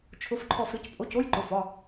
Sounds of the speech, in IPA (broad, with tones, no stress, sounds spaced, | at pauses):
t͡ʃʰ ʊ˧˥ f ǃʰ ɔ˦˨ f ɾ ɨ˧˥ c pʼ o˧˥˧ c o˧˥˧ j ǃ ʊ˩˧˩ f ɒ˩˧˩